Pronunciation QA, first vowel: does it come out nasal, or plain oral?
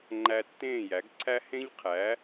oral